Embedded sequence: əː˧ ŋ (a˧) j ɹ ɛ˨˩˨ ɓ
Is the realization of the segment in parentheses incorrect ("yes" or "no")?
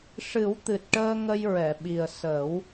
yes